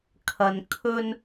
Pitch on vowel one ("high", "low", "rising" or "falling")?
low